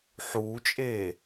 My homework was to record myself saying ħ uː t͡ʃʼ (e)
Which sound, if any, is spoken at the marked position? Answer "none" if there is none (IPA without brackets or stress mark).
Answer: eː